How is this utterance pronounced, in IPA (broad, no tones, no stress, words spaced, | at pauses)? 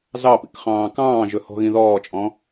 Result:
zɑpḭk χɑ̃ːkɑ̃ːʒɵ hɔ̤ɣĩðɔːt͡ʃʼɔ̃